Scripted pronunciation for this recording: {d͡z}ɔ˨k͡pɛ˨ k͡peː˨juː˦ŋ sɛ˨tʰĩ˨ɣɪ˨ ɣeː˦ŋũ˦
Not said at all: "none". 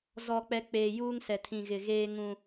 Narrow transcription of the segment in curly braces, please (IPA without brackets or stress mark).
z